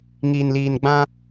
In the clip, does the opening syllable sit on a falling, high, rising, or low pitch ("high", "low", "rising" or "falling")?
low